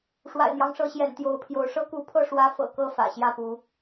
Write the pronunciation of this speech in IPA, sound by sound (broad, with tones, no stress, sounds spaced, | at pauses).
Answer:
ʂ w a̰˨˩ ɪ̯ n̪ j ɑ˦ ŋ ʂ ɤ˨˦ ɕ j ɛ̰˨˩ n t̪ j o˨˦ ʊ̯ pʰ j o˨˦ ʊ̯ ʂ ɤ˦ k u˨˦ pʰ ɤ˥˨ ʂ w ä˦ f ɤ̰˨˩ k ɤ˥˨ f ä̰˨˩ ɕ j ä˥˨ p u˨˦